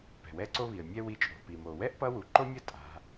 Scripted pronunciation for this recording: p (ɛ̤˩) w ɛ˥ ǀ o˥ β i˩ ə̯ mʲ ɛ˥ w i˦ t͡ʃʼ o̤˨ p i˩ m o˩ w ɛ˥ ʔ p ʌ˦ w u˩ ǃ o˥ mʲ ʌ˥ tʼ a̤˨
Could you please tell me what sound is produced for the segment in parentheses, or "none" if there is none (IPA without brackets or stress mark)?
ɛ̤˩